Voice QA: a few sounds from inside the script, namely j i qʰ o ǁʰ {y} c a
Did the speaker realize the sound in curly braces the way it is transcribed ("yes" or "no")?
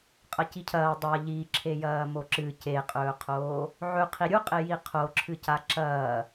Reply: no